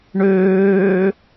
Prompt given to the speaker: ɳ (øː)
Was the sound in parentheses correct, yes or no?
yes